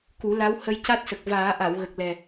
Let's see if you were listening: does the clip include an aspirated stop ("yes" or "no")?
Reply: no